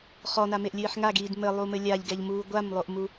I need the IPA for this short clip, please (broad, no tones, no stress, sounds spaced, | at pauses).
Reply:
χ ɔ n a m e ʔ lʲ ɨː ħ ŋ a ɡ iː d m ɘ lˠ u m ɘ lʲ a ʎ ɡ ɛ ʎ m uː ɡʷ a m lˠ o ʔ m u